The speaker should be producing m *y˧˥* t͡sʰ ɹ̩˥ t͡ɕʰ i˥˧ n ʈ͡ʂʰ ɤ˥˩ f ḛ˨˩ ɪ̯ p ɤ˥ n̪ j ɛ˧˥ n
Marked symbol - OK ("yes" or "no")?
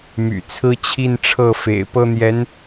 no